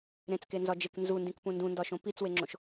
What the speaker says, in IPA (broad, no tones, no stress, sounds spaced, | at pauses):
ɾ ẽ t͡s k e n z ɒ d͡ʒ e k n z u n d ĩ k p ũ n d ũ n d ɒ ʃ õ p i t͡s w e ŋ͡ǁ õ ʃ